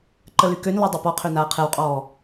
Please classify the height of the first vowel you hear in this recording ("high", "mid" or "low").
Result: mid